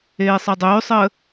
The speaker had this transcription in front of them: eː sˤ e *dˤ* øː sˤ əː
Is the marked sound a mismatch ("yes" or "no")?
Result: no